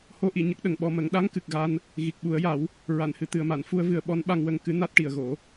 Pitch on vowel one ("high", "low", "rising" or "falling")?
rising